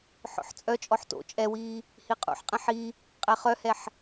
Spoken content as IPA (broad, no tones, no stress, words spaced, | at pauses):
ħɔ̰ħt͡sʼœt͡ʃʼɔħ to̰ t͡ʃʼɛwiː | hiqʼṵħqʼɛ̃ ħi | qʼɛχœhɛħ